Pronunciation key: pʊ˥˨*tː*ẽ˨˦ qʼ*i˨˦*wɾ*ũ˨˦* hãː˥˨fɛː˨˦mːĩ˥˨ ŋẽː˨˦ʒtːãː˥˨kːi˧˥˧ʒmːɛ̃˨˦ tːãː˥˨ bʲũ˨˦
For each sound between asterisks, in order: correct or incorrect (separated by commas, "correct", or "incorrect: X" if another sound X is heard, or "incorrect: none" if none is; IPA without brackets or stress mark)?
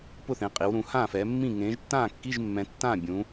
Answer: incorrect: θ, correct, correct